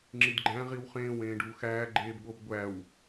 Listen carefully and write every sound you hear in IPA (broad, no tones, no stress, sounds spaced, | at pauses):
ŋ͡ǁ i d ɡ͡ǃ æ̃ ʁ i w χ ẽː w ẽː ɖ uː x æː ɡ͡ǃ eː b ɠ o b ɡʷ æ w